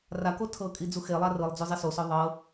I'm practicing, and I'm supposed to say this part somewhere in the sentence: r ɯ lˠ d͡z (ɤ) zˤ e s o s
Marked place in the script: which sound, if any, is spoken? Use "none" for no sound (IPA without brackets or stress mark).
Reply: o